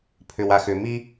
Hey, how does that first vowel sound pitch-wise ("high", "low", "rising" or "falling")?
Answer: low